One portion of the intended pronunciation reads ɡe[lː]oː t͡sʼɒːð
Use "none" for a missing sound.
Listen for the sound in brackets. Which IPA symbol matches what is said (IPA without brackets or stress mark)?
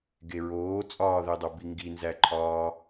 ɹ